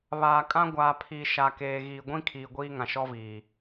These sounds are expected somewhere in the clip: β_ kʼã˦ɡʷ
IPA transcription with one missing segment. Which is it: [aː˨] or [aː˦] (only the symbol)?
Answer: aː˨